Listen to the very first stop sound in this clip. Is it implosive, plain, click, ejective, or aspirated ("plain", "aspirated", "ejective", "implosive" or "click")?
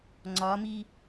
click